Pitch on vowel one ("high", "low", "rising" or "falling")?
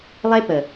high